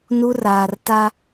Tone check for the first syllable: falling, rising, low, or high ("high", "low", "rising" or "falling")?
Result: high